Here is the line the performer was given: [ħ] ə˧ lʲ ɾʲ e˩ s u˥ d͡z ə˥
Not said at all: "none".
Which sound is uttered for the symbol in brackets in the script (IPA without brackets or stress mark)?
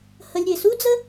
h